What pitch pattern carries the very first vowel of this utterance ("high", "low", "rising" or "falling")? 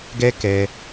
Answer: high